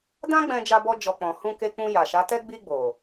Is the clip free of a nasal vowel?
no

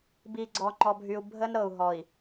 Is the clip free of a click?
no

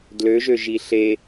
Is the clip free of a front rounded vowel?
no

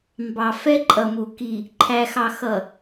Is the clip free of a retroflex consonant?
yes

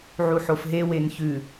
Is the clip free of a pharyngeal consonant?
no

